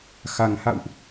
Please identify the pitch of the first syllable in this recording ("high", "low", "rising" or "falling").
low